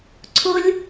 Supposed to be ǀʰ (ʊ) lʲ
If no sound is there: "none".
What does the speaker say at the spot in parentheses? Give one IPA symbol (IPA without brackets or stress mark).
ʊ